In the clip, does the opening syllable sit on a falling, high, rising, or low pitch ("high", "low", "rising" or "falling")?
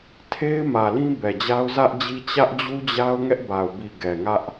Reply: high